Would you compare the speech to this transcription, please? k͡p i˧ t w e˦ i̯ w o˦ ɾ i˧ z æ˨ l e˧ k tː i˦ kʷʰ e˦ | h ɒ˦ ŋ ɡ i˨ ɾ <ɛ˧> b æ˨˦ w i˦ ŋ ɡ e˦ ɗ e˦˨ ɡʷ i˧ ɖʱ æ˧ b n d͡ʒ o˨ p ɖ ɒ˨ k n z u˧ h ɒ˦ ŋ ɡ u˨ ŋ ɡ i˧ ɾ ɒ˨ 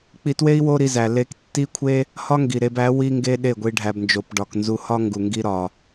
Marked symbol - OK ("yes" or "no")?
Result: no